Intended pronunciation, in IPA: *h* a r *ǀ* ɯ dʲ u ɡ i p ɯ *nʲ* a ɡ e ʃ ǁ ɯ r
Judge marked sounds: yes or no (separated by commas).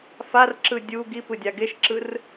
no, no, no